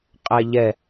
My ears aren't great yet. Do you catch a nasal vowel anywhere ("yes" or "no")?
no